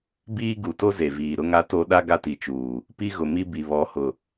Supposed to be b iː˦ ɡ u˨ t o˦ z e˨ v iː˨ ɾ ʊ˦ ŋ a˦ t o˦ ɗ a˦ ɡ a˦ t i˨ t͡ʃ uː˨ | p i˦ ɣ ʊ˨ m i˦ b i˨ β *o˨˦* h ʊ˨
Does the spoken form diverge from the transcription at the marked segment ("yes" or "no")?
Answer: yes